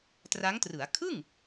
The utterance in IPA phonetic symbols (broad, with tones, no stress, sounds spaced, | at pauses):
t r a˦˥ ŋ t r ɯ˩˦ a̯ kʰ ɯ˥˩ ŋ